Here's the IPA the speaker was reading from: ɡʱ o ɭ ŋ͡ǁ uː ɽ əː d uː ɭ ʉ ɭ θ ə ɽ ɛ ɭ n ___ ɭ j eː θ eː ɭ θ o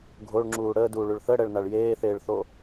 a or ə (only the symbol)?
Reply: a